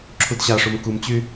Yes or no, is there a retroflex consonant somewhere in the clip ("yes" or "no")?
yes